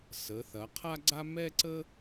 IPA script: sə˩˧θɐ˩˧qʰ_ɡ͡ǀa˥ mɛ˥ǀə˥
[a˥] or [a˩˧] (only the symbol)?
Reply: a˥